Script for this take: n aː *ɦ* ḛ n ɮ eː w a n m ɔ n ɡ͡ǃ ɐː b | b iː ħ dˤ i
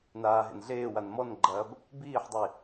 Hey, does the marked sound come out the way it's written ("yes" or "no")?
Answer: yes